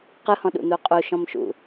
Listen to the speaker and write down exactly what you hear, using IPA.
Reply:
qɯhɔ̃ ɗṵn̪uqʼu ʃɔ̃mʃṵ

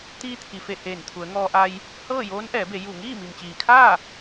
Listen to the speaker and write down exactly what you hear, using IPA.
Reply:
t̪iː˧t̪ʰi˩fe˧˩ heː˧˩nt̪ʰu˩˧ə̯ŋɔː˧ʔa˧j | hɤː˥˨joː˧˥n ʔɛː˩˧be˩˧ ju˧˩ ŋiː˥˨mi˩mt͡ɕiː˩kʰaː˥˨

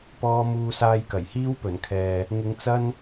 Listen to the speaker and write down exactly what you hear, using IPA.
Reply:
pɔː˥ muː˧saː˧jkɐ˨˩j hiː˥wpɵ˨˩n kʰɛː˨ | ŋɪ˧ŋt͡sɐ˥n

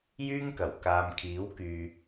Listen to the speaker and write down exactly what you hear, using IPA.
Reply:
jyː˥ŋkɐ˨˩w kaː˨mkʰiː˨˥wkyː˨

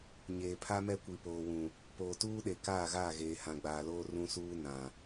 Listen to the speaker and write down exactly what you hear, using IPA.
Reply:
ɲeː˨pʰa˦mɛ˦ kʷi˨poː˨wũ˨ | poː˨tuː˦ɗe˨ kaː˦˨ɣaː˦˨ɣeː˨ hã˨ɡ͡baː˨loː˦ rũ˦suː˦ nã˨

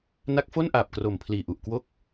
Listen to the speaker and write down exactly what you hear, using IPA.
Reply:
na˦˥k̚fo˥˩nʔaː˨˩p̚kro˨˩m pʰliː˨˩ʔu˨˩ʔkwo˦˥k̚

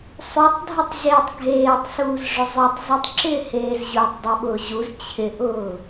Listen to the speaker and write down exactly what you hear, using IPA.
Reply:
sˤutˤ dʱutˤʑeːtˤɡʱeːtˤsuːz ʐɵzˤɵtˤ zɯtˤǁɪːheːz ʑʊːtˤdˤoɓʊːʑuz t͡ɕʰɪʔʊː

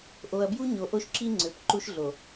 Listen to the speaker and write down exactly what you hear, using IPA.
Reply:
ʔo˨ɐ̯bju˦ɲo˨ ʔo˦ʃǁi˦ ŋ͡ǀø˨p ǃu˦ʃɮo˨

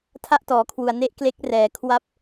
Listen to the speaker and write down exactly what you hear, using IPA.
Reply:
tʰa˥˩ʔtɔː˩˦kʰwu˨˩a̯ ne˥˩ʔkle˦˥k̚rɛː˩˦ kʰwa˥˩p̚

